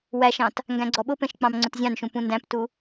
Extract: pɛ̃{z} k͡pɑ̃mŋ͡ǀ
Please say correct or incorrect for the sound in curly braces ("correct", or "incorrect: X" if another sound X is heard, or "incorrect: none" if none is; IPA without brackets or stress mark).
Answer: incorrect: ʃ